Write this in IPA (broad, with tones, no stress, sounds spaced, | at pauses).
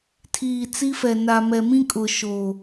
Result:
tʰ iː˨ t͡s i˦ f ɛ˨ n a˨ m ɛ˨ m ĩ˦ kʼ ʊ˨ ʃ o˨